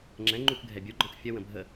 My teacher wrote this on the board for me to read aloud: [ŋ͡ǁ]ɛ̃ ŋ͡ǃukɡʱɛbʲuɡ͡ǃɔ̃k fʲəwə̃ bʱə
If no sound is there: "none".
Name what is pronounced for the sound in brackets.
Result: ŋ͡ǁ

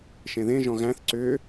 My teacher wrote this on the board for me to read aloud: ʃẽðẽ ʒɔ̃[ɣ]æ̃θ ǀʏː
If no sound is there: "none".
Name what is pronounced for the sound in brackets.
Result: ɣ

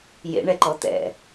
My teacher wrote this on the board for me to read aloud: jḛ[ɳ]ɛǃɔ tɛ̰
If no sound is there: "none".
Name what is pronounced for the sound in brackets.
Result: ɳ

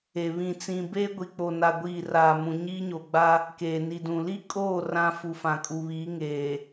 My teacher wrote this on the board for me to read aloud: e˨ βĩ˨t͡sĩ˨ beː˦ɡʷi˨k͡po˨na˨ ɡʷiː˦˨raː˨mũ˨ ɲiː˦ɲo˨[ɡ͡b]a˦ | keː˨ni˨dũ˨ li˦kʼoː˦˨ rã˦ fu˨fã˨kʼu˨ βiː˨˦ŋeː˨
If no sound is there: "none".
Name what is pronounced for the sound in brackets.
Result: ɡ͡b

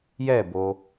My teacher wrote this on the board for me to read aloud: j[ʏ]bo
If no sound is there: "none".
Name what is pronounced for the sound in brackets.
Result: ɛ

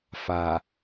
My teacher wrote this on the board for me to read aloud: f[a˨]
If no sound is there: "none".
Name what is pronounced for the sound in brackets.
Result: a˨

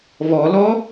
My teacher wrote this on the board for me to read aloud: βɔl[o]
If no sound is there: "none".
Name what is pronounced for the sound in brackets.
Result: ɔ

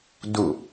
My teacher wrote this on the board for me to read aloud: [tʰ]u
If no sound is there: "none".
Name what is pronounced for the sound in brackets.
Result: d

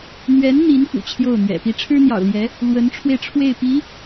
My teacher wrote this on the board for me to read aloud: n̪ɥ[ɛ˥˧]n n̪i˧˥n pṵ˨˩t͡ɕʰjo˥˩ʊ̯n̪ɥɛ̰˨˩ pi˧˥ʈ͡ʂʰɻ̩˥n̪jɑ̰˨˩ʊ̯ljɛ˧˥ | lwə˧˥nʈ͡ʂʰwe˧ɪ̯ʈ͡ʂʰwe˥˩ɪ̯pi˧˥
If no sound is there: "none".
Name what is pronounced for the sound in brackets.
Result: ɛ˧˥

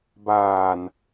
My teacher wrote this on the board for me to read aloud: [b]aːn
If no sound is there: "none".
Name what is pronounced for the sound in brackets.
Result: b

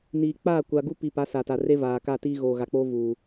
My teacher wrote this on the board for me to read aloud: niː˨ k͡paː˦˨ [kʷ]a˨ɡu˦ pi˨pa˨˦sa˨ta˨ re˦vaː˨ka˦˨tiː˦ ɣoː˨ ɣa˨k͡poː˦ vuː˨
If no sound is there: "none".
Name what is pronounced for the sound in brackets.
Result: kʷ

